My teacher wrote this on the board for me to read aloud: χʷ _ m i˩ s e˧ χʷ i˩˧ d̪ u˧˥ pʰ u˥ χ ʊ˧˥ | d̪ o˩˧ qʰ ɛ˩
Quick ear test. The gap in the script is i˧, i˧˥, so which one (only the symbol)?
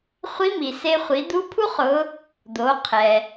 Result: i˧˥